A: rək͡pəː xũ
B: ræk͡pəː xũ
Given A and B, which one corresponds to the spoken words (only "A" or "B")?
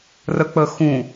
A